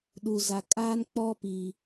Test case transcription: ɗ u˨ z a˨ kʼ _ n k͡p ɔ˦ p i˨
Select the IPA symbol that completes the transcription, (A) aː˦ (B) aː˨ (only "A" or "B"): A